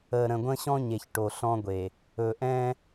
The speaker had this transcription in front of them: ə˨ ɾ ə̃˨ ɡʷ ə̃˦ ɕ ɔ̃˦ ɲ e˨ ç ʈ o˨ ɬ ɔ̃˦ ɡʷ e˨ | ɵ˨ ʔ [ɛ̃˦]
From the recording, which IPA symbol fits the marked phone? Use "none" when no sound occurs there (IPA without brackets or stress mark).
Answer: ɛ̃˦